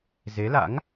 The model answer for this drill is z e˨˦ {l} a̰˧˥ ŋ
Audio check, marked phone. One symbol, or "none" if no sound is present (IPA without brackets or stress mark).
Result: l